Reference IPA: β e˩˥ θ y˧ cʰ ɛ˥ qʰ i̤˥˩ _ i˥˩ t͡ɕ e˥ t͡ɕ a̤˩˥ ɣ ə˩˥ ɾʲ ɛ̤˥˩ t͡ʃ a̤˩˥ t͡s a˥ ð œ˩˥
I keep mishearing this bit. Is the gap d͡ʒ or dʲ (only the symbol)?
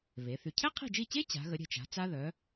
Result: d͡ʒ